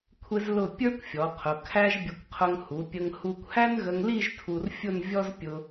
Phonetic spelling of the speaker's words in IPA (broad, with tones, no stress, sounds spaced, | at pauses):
kʷʰ ɪ˧ z l ʊ˧˩ pʲ ə˞˥ kʷ fʲ ɔ˩˧ qʰ ʊ˩˧ kʰ æ˥ ʒ bʲ ə˧ kʷ qʰ ʊ˧ ŋ h u˩˧ pʲ ə˧ ŋ h u˧ kʷ h æ˥ n ɣ ə˧ ŋ l i˥˧ ʒ tʰ u˧ r fʲ ʊ˥˧ n vʲ ɔ˥ z pʲ ʊ˧